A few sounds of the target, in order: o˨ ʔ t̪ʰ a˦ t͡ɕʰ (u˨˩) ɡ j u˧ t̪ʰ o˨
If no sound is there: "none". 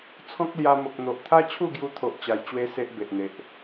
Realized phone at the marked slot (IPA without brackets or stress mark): u˥˧